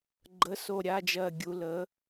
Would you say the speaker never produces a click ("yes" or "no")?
no